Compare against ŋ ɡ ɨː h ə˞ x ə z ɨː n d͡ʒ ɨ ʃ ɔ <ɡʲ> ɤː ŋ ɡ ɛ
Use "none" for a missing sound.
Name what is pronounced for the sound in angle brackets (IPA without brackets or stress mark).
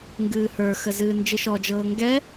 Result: d͡ʒ